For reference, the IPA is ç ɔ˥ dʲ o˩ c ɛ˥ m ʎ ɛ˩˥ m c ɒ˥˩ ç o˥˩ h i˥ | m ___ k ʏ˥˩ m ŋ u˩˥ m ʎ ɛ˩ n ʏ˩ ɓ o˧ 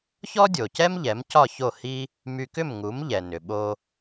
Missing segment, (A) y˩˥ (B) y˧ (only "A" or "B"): B